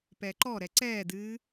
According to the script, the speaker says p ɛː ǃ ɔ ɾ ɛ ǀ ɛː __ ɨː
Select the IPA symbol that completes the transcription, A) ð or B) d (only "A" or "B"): B